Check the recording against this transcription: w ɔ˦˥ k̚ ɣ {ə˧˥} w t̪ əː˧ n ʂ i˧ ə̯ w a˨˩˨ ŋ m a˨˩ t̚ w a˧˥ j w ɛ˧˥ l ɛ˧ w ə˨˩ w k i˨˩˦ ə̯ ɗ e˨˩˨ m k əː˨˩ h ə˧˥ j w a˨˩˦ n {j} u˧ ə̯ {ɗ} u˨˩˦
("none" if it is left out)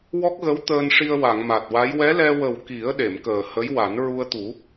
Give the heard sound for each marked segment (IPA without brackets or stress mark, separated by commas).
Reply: ə˧˥, ɹ, t̪